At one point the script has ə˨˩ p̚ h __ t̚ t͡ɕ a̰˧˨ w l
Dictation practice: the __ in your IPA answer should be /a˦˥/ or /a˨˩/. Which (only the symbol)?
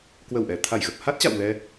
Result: a˦˥